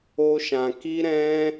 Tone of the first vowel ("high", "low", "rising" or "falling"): high